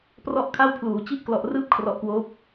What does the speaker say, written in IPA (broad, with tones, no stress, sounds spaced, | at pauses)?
p r ɔ˥˩ ʔ kʰ a˥˩ w pʰ l uː˩˦ t͡ɕ i˥˩ ʔ k l ɔ˨˩ ʔ r ɯː˥˩ p̚ kʰ r ɔ˨˩ ʔ k w oː˦˥ p̚